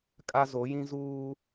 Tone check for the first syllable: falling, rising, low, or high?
high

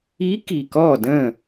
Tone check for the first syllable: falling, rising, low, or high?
rising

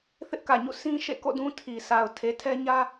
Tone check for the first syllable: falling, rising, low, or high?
high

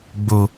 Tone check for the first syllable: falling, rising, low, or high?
low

